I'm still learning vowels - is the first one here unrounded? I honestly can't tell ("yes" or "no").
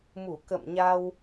no